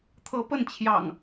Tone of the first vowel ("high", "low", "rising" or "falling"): rising